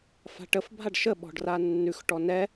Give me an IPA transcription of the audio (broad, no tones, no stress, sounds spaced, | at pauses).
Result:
f a̤ ʈ ə f bʱ a ɖ ʃ ə ɓ ɔ̤ ɖ r a nː ʉ x ʈ ɔ n ɛ